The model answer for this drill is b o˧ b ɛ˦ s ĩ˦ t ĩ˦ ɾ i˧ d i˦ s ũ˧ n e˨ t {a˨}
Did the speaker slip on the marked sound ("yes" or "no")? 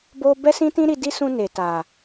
no